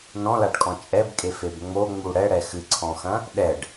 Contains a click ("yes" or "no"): yes